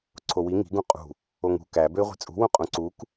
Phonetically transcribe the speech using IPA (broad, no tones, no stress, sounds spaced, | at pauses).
ǀʰ o w i ŋ i̤ ɡ ũ qʼ ṳ | o ŋ ṳ k æ b ø ɪ̯ ʁʷ i̤ t͡sʼ ṳ w ũ qʼ ũ ǀ u k